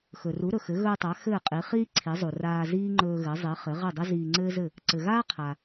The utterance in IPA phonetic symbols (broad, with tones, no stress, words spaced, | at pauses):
xɵ˩ru˩˥ɾɵ˩xɘ˩˥ ɣɵː˧tˤa˩˥ xɘː˥˩qʼi˩˥ χiː˥ ǀʰi˩˥zˤu˩ raː˧ ziː˥ŋ͡ǃɵː˧ɣɘ˩˥ zˤi˩˥χɘ˩˥ ʁɘ˥˩dˤɘ˥ ziː˧ŋ͡ǀɘː˥zɘ˥˩ | ǀɘ˩ɣaː˥ qʰa˩